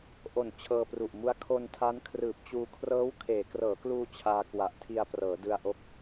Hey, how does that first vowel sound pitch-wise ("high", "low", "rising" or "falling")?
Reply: low